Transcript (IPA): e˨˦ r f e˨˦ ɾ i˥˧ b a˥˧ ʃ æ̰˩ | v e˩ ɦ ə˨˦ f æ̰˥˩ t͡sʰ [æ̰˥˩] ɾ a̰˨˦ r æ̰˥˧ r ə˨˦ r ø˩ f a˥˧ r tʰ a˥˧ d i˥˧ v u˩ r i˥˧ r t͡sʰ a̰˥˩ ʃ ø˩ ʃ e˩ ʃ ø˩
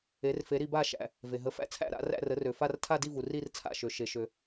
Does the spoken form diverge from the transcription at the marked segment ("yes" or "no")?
no